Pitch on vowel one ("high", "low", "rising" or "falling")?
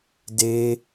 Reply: high